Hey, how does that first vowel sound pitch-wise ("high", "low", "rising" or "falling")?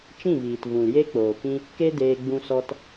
falling